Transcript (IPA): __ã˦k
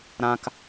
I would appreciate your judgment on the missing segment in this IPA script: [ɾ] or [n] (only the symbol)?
ɾ